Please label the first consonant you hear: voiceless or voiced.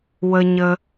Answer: voiced